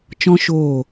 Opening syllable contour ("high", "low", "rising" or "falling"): high